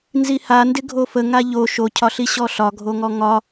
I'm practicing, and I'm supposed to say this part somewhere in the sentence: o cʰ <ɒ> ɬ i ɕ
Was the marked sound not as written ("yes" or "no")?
no